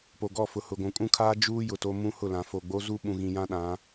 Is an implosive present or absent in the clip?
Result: present